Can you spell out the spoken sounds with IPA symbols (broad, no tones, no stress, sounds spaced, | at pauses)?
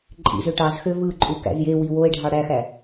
ǃʼ ḭ z ø ʈ ɑ z x ø v ɯ ǃʼ u k æ̰ z j e w i w o e̯ ɖʱ ɑ ɽ æ x æ